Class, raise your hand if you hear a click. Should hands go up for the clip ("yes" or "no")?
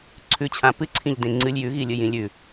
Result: yes